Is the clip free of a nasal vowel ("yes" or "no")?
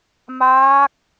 yes